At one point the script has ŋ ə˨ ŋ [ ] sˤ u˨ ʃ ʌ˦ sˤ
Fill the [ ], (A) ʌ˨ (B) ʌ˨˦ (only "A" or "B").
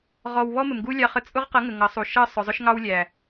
B